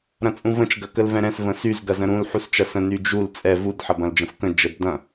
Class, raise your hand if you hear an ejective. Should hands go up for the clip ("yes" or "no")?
yes